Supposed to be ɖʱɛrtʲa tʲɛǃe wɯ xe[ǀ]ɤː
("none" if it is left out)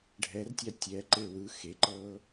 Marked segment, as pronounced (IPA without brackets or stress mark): ǃ